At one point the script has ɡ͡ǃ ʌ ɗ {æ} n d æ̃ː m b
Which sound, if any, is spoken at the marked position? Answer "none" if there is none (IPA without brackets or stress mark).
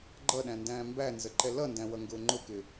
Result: æ̃